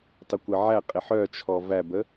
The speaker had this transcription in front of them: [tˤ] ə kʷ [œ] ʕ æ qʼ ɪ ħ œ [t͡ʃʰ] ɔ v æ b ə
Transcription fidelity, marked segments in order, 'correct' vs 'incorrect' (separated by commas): correct, incorrect, correct